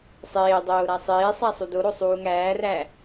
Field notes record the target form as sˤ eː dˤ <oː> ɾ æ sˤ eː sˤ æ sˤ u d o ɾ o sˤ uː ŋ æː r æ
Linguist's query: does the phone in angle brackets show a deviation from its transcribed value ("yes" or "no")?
no